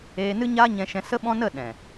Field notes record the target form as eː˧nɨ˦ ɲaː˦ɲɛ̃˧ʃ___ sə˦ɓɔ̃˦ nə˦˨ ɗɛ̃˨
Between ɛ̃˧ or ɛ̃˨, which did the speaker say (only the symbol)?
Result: ɛ̃˧